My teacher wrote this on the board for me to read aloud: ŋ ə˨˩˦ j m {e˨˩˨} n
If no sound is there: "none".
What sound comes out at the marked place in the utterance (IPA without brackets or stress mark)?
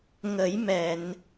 ɛ˨˩˨